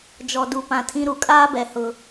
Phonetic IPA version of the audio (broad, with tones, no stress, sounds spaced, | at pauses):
d͡ʒ ɔ˨ d u˨ p ã˨ tʰ ĩ˦ ɾ u˨ kʼ aː˦ b ɛ˨ h ʊ˦